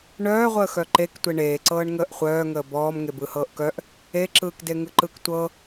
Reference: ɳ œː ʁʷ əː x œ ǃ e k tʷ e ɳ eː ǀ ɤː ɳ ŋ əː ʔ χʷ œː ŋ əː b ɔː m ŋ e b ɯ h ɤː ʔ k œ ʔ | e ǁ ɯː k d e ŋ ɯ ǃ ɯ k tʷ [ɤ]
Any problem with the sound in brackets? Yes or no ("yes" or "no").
no